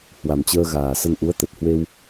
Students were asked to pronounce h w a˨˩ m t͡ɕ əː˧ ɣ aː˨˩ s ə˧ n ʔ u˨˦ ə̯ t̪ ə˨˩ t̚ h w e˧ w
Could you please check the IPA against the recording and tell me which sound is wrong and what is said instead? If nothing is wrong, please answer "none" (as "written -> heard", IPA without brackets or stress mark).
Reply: none